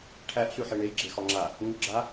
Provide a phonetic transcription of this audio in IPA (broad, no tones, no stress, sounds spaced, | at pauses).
ʈʰ æ ʔ ɬ ʉ ħ e ɳ e j ɡ͡ǁ e x ɒ ŋ͡ǁ a | ŋ ʉ ɡ͡ǁ a